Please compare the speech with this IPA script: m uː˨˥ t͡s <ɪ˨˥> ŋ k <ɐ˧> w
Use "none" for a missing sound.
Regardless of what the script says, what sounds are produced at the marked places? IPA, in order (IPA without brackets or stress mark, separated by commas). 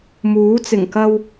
ɪ˨˩, ɐ˧